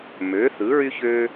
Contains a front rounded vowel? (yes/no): yes